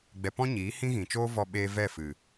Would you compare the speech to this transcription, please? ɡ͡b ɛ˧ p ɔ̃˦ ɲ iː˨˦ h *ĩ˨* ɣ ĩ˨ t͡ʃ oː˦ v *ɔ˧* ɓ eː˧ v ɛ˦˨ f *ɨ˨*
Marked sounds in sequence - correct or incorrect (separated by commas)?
incorrect, correct, correct